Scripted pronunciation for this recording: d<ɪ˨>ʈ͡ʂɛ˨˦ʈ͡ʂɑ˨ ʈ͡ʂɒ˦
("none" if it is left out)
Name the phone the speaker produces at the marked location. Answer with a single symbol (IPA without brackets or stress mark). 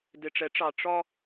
ɪ˨